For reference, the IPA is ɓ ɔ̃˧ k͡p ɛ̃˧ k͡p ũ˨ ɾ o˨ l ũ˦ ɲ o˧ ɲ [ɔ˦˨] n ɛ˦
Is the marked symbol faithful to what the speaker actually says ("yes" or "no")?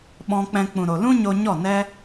yes